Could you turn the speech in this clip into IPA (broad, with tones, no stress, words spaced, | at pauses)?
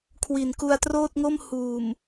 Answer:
kʰwi˨˩nku˧a̯troː˥˩t̚ŋo˥˩m huː˨˩m